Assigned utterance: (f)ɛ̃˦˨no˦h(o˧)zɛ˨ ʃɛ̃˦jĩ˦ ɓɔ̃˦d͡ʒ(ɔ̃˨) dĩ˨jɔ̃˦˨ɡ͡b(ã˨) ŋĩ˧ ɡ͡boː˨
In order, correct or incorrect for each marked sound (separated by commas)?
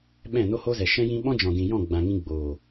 incorrect, incorrect, correct, correct